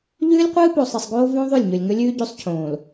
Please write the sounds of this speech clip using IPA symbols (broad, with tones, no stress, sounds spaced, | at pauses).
ʎ ʉː˦ lʲ qʷ ɨː˦ p o˨ sˤ i˨ sˤ ɡ oː˦ v õ˦ ðˤ ʉ˦˨ lʲ ɲ ɵ˨ lʲ ŋ ɵ˦ lʲ ʉː˦ ɟ ʉ˦ sˤ cʰ õː˨ l